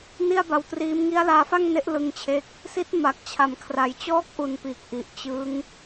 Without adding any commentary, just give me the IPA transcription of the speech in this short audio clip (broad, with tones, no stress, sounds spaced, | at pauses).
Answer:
n i˥˩ a̯ b a˧ w t r iː˦˥ m ŋ i˦˥ a̯ l aː˧ f a˥˩ ŋ n e˦˥ ʔ l ɯ˧ ŋ t͡ɕʰ e˦˥ k̚ | s i˦˥ t̚ m a˨˩ k̚ t͡ɕʰ a˩˦ m kʰ r a˧ j t͡ɕ ɔː˦˥ k̚ ʔ u˨˩ n p iː˨˩ k̚ ʔ i˨˩ ʔ t͡ɕ ɯ˦˥ ŋ